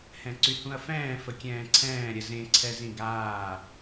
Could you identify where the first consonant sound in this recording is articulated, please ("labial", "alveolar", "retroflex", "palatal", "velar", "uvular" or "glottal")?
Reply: glottal